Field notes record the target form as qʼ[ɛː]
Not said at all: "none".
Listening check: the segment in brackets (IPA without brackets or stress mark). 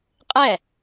ɛ